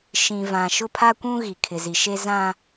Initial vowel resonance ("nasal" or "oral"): nasal